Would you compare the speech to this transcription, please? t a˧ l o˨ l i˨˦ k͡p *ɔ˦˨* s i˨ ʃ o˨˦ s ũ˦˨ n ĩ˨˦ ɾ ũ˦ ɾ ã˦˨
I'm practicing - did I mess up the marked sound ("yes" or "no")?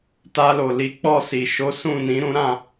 no